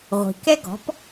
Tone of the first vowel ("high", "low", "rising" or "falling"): low